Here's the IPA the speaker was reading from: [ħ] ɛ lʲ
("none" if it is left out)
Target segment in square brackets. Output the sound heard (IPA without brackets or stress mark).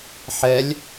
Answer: ħ